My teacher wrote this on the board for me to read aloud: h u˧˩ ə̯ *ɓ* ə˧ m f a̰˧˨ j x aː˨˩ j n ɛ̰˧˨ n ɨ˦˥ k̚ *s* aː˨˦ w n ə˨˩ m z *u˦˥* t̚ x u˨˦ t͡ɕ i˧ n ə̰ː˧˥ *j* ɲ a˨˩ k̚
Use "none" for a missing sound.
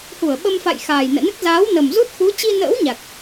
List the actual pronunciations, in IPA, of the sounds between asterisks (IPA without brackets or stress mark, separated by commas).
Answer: ɓ, z, u˦˥, w